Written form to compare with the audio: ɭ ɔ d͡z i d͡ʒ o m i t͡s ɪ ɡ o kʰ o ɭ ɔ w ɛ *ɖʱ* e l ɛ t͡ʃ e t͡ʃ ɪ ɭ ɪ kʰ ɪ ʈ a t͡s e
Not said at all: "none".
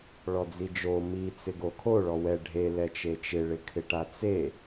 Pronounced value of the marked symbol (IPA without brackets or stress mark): ɖʱ